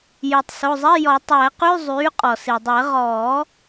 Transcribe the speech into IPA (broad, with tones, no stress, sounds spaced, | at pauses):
j yː˩ tˤ s o˩˧˩ zˤ i˧˥˧ j ɔ˨˩˦ tˤ æ˨˩˦ q y˧˥˧ zˤ yː˩˥ qʼ ɔ˩ s i˩ dˤ ɛ˨˩˦ ʁ ɔː˨˩˦